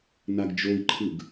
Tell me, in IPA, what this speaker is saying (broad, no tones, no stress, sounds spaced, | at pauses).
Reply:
n a ɡ d͡ʒ o i̯ ǃʰ ɯ ɡ